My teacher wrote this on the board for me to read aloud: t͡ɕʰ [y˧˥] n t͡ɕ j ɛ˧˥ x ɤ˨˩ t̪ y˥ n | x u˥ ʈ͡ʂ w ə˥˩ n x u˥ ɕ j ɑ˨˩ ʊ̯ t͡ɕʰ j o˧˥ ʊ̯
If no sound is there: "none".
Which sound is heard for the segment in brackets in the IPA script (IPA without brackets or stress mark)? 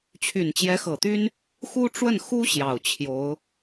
y˨˩